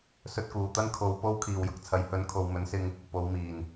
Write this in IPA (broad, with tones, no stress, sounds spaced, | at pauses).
s ɵ˧ t̚ k uː˨˩ t̪ ɐ˥ n kʰ o˧ w p o˥ w kʰ iː˨˩ w j ʊ˨ k̚ t͡sʰ ɐ˨˧ j h ɵ˨˥ n kʰ o˨ w m ɵ˨˥ n s ɪ˧ ŋ | p o˨˧ w m iː˨˩ n